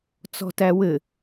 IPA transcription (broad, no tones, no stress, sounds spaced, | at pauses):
t͡s ɔ̤ t æ w ɘ